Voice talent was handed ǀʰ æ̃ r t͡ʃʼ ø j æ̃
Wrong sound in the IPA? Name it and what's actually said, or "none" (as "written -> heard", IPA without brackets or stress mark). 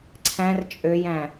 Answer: none